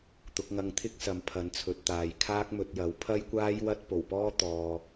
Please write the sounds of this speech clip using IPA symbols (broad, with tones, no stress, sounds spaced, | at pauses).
t̪ ʊ˨˥ k̚ ŋ ɐ˧ ŋ t̪ʰ ɪ˥ k̚ s ɐ˨˧ m pʰ ɐ˨˥ n t͡sʰ ɵ˨˥ t̚ t̪ aː˨ j kʰ aː˥ k̚ m ɵ˧ t̚ j ɐ˨˥ w pʰ ɐ˥ j kʷ aː˥ j w ɐ˥ t̚ p o˨˩ w p ɔː˥ t̪ ɔː˨